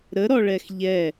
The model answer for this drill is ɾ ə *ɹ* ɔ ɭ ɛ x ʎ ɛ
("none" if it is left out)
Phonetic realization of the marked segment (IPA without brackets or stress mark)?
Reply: ɾ